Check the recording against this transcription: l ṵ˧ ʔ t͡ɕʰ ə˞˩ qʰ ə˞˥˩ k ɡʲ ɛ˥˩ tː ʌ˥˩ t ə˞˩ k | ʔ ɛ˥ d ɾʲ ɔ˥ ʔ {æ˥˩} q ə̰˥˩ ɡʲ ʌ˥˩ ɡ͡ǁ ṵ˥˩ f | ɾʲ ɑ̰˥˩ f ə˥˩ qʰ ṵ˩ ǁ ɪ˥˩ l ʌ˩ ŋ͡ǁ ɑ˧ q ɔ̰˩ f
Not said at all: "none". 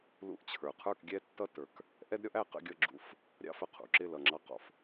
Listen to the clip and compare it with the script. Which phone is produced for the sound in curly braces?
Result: æ˥˩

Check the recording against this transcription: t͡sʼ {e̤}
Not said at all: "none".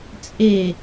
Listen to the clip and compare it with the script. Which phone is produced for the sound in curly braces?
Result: e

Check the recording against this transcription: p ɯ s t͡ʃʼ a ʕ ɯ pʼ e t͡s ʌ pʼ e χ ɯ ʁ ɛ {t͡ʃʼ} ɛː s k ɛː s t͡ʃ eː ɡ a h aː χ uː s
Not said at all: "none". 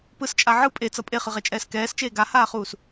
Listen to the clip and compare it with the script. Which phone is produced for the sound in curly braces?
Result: t͡ʃʼ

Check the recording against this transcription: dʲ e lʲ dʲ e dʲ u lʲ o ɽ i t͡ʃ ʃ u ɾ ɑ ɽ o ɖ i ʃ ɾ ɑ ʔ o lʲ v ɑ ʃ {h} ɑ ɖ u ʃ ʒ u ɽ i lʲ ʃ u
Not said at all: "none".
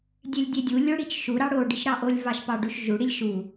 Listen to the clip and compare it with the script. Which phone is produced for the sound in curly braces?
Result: p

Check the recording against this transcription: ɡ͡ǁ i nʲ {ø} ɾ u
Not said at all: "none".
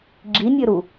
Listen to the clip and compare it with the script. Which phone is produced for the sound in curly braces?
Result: ø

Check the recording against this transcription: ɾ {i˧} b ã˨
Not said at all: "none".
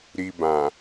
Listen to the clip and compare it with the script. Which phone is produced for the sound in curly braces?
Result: i˧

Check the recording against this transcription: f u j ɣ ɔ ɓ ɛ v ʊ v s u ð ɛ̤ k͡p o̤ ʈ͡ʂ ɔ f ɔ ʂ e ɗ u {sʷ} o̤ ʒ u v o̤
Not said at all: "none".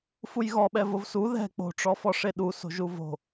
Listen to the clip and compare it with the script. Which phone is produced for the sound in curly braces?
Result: s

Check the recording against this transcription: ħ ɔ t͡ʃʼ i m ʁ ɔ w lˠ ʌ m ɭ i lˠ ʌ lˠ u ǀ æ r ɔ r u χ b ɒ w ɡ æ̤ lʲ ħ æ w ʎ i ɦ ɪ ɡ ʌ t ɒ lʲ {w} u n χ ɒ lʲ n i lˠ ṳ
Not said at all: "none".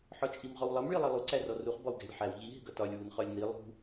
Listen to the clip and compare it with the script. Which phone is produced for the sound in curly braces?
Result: w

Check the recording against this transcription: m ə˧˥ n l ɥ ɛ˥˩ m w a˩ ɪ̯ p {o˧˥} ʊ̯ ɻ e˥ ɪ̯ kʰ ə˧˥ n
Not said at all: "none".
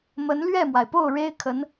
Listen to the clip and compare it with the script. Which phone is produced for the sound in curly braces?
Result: o˥˩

